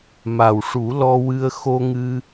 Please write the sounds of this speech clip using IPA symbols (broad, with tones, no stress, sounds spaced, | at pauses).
m a˨˩ w ʂ u˨˩˦ l ɔ˧ w ɨ˧ ə̯ x o˧ ŋ ɨ˧